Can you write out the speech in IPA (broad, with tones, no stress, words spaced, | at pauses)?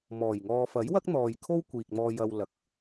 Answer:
mɔː˨˩jŋɔː˧ fɐ˨˥jwɐ˥k̚n̪ɔː˨j kʰo˥wkʷiː˨k̚ mɔː˧jɐ˧w lɐ˨k̚